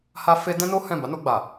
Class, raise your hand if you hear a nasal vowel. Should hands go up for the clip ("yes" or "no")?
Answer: yes